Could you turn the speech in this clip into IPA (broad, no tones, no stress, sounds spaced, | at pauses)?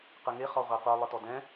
q ɯ ŋ e χ ɔ ʁʷ e qʷ ɯ lˠ ɯ t ɔ d ɛ̃